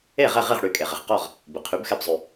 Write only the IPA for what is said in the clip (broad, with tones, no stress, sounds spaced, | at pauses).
e˥˩ ʁ ɛ˥˩ ʁ i˥˩ ʁ ɽ y˩˥ kʼ e˩ ʁ ɪ˩ ʁ q ɔ˥˩ ʁ | b ɪ˩ qʰ y˩˥ b x ɛ˧ b zˤ y˩